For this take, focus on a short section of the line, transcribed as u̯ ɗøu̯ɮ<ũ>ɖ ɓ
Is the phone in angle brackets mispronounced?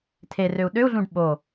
no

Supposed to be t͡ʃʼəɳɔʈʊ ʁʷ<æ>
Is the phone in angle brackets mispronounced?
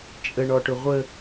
yes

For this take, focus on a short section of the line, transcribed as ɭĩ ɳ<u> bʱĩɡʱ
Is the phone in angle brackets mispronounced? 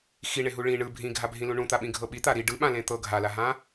yes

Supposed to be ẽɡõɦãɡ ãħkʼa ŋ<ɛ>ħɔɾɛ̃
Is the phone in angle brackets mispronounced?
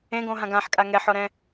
no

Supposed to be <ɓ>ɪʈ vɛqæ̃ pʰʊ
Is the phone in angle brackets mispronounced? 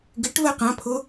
yes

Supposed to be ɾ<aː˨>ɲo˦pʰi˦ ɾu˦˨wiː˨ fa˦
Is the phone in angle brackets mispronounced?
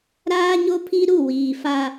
yes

